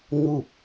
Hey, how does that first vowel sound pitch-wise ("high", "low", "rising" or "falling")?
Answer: falling